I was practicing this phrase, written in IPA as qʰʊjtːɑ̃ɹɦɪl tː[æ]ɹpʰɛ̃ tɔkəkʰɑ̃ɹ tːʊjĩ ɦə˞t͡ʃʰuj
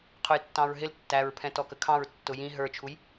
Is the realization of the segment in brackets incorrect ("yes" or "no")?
no